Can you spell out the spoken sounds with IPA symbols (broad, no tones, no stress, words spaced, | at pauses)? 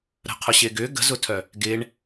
ɾə̤ qʰʊɕɪːɡʏː ɡə̤zʊtʰœ | ɡɪːɳ